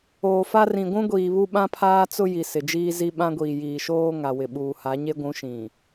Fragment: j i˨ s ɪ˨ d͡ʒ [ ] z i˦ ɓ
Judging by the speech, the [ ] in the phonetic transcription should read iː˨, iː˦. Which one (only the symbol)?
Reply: iː˦